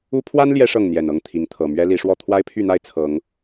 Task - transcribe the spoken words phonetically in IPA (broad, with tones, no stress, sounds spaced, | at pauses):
u˦ pʰ w a˦ n l j ɛ˦ ʂ ɤ˥˨ ŋ n̪ j ɛ˨˩ n ɤ˥˨ ŋ t̪ʰ i˨˦ ŋ t̪ʰ ɤ˨˩ m ɥ ɛ˦ l i˨˦ ʂ w ɔ˥˨ t̪ʰ w a˦ ɪ̯ pʰ y˥˨ n̪ a˥˨ ɪ̯ t͡sʰ ɤ˨˦ ŋ